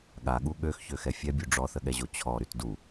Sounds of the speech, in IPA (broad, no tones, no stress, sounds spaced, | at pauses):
ɠ a ɠ u ɠ ø x ç ø x ɛ fʲ ɛ bʲ u ɖ͡ʐ ɔ θ ə ɠ ɛ ʑ o t͡ɕʰ ɔ ɾ y t d u